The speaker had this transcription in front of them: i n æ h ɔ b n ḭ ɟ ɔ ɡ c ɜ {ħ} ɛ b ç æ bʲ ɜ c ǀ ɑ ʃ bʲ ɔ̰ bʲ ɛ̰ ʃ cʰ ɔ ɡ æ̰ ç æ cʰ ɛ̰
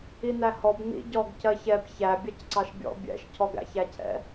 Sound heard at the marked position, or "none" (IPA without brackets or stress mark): ç